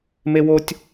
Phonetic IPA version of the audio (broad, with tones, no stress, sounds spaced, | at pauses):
m e˦ w o˦ tʲ